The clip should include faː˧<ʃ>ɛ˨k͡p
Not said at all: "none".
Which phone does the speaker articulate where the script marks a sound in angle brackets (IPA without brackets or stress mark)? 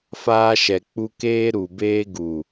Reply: ʃ